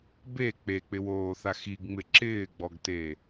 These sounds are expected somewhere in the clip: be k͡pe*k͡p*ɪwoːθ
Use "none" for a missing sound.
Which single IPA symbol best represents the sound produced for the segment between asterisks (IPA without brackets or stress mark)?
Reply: k͡p